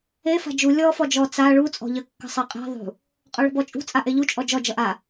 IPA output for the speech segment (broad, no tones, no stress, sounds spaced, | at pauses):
e f a̤ d͡ʒ u lʲ ɔ f ɔ d͡ʒ ɔ t͡s a ɭ u t͡sʼ ɔ̤ ʎ ə kː ə̤ sˤ e qʼ e̤ ðˤ ṳ | qʼ ɔ ɭ ə̤ b ɔ t͡ʃʼ ṳ t͡sʼ a ʔ e ʎ u t͡ʃʼ ɔ d͡ʒ ɔ d͡ʒ ʌ ʔ a